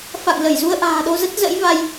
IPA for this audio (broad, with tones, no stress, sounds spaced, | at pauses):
f a̰˧˨ ŋ l ə˧˩ j z u˧ ə̯ ʔ a̤ː˨˩ ɗ o˧ z ə˦˥ t̚ z ə̰˧˥ j v a˧ j